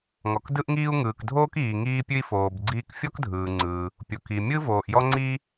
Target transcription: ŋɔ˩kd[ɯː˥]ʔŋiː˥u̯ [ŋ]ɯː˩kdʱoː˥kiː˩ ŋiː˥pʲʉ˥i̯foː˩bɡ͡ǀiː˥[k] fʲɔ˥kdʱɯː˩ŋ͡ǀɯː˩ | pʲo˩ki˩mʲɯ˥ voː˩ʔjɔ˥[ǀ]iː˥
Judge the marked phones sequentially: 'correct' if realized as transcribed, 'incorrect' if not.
incorrect, correct, correct, incorrect

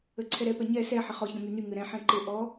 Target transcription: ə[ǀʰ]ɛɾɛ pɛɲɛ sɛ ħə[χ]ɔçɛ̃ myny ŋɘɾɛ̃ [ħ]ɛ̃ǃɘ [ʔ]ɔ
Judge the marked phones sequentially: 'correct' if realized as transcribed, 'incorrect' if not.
correct, correct, correct, correct

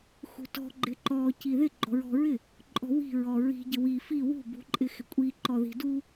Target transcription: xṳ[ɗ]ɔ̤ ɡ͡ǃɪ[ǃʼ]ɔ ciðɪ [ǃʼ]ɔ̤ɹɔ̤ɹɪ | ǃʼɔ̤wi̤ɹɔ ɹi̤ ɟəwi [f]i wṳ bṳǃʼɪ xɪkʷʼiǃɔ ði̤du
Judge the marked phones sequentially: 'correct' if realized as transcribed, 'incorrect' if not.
incorrect, incorrect, incorrect, correct

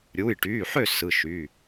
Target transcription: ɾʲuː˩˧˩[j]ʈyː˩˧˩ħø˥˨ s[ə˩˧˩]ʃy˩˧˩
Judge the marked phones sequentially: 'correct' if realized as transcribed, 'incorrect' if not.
correct, incorrect

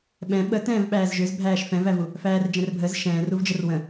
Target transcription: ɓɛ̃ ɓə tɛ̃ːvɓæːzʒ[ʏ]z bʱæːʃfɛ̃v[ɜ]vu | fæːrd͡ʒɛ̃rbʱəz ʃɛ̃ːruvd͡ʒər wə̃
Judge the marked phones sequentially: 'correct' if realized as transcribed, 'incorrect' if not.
correct, incorrect

